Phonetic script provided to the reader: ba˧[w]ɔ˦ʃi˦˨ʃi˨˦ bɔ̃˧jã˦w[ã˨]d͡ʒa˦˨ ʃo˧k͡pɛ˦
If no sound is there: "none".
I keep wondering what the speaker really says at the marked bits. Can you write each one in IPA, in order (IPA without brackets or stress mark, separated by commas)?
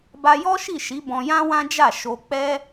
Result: j, ã˦